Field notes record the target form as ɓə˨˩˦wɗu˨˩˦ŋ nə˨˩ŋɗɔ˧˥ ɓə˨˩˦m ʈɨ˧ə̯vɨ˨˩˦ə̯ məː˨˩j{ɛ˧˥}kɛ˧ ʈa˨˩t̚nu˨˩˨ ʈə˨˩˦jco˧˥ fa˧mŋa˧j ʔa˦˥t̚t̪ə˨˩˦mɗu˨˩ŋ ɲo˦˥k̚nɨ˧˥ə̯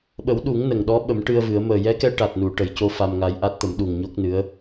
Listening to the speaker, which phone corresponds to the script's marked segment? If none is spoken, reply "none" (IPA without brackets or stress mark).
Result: ɛ˧˥